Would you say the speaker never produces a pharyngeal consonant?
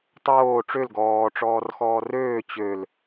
yes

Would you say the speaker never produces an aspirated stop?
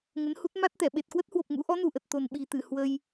yes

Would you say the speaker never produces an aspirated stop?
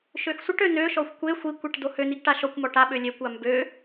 yes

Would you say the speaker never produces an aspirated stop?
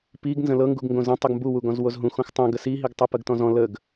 yes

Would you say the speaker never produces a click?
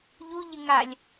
yes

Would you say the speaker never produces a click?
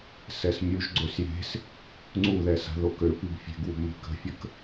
no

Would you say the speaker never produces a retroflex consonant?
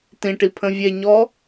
no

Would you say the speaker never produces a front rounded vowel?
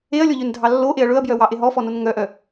no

